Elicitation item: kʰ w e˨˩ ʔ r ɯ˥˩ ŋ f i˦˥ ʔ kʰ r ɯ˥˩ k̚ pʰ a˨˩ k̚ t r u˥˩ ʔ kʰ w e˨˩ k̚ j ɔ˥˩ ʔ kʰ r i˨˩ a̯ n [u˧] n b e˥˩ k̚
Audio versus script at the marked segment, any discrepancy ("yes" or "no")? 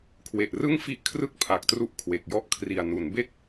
yes